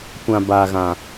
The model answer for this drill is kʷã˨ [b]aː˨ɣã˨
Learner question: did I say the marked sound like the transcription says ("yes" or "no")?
yes